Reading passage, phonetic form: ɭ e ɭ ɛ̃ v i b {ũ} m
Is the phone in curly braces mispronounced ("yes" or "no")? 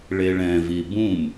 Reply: no